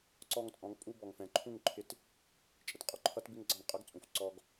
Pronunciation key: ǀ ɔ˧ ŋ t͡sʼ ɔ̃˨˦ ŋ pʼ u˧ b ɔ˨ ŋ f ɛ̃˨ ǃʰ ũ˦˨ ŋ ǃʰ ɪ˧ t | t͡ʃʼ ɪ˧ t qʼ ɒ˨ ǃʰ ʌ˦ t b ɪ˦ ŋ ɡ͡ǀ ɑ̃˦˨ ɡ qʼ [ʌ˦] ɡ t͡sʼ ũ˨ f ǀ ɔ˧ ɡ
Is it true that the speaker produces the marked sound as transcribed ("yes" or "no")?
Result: yes